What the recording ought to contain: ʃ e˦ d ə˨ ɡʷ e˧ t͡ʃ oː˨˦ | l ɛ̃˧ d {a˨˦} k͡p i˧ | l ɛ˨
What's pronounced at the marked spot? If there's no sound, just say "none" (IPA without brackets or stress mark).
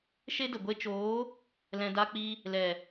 a˧